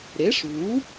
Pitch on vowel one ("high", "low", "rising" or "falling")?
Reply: rising